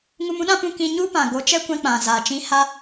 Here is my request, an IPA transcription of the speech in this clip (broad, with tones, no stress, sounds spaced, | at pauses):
ŋ u˧ m ũ˦ ɗ ã˦ p ũ˧ k ĩ˧ ɲ u˦ p ã˨ ɡ o˨˦ t͡ʃ ɛ˦ kʷ ɛ̃˧ k͡p ã˨ z a˨ t͡ʃ ĩ˧ h a˦